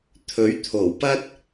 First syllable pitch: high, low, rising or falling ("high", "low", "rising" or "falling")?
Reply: rising